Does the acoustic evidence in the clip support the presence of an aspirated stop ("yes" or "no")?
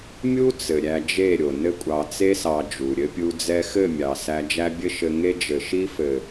no